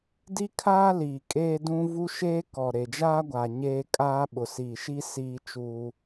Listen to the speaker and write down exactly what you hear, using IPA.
d i˦ kʰ aː˦ l iː˨ kʼ eː˦ d ũ˦ v u˦ ʃ eː˦ k ɔ˨ ɾ e˨ d͡ʒ aː˦ ɡʷ a˨ ɲ eː˦ kʼ aː˦ ɓ ʊ˨ s iː˨ ʃ i˦ s iː˦ t͡ʃ uː˦

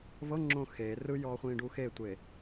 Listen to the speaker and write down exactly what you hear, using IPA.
v ɤ ŋ͡ǁ õ x e r ɯ j ɔː χʷ ĩː ɖ u x e tʷ e

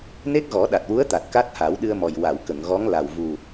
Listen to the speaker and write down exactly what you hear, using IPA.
n e˦˥ k̚ ɣ ɔ˨˩˦ ɗ a˨˩ t̚ w u˧˥ ə̯ t̪ a˨˩ t̚ k a˦˥ t̚ h a˨˩˦ w ɗ ɨ˧ ə̯ m ɔ˨˩ j w a˨˩˨ w k ə˨˩˨ ŋ ɣ ɔ˧˥ ŋ l a˨˩ w v u˨˩

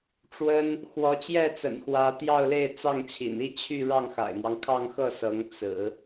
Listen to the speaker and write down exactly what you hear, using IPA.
ʈ͡ʂ w ə˥ n | x w ɔ˧˥ t͡ɕ j ɛ˥˩ t͡s ə̰˨˩ n x w ä˧˥ t̪ j ɑ˥˧ ʊ̯ l e˥˧ ɪ̯ t͡s ɑ˥˩ ŋ t͡ɕʰ ḭ˨˩ n i˥˧ t͡ɕʰ y˥˧ ɻ ɑ˥˩ ŋ x a̰˨˩ ɪ̯ m w ɑ˦ ŋ kʰ ɑ˥˧ ŋ x ɤ˥˩ s ɤ˧˥ ŋ t͡s ɹ̩˨˩˦

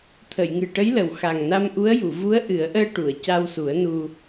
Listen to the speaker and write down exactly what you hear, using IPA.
t̪ʰ ə˨˩˨ j ŋ ɨ˨˩ ʈ ə˧˥ j l ə˨˩ w x a˨˩ ŋ n a˧ m ʔ u˧˥ ə̯ j u˨˩˨ v u˧˥ ə̯ ʔ ɨ˨˩˦ ə̯ ʔ əː˧ ʈ u˨˩˨ ə̯ c a˧ w s u˨˩˦ ə̯ n u˧

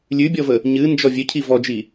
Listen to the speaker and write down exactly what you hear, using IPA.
lʲ ʉ bʲ ɔ v ə | ɲ ɨ n d͡ʒ ɔ vʲ ø cʰ i v ɔ d͡ʒ i

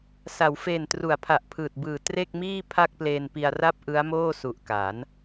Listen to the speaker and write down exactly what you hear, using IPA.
s a˩˦ w f eː˨˩ n t r u˩˦ a̯ pʰ a˨˩ ʔ pʰ ɯː˨˩ t̚ b ɯː˨˩ t r e˥˩ k̚ m iː˥˩ pʰ a˥˩ k̚ p l eː˧ n p i˧ a̯ r a˥˩ p̚ ʔ ɯ˦˥ a̯ m oː˥˩ s u˨˩ ʔ k a˩˦ n

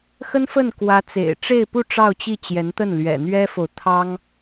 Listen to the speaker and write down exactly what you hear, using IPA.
x ə˥ n f ə˥˩ n k w ä˧˥ t͡s ḛ˨˩ ɪ̯ ʈ͡ʂ e˥˧ ɪ̯ p u˥˧ ʈ͡ʂ ɑ˥˧ ʊ̯ t͡ɕ i˥˩ t͡ɕ j ɛ˧˥ n t̪ ə˥˩ n l ɥ ɛ̰˨˩ n̪ ɥ ɛ˥ f o˨ ʊ̯ t̪ʰ ɑ˥ ŋ

